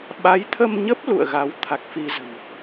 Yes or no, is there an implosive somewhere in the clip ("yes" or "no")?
yes